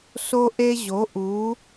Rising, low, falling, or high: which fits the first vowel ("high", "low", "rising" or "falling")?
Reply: high